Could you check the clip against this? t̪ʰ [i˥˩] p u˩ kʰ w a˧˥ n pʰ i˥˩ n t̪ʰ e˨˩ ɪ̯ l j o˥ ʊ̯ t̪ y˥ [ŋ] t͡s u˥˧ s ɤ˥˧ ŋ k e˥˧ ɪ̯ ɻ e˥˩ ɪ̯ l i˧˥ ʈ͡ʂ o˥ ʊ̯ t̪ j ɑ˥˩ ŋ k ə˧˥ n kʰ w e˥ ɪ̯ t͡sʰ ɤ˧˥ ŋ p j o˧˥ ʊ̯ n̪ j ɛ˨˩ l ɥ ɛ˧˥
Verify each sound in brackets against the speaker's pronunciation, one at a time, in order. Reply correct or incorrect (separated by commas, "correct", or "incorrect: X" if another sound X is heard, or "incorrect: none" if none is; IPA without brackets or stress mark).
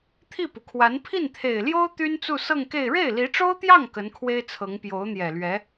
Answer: correct, incorrect: n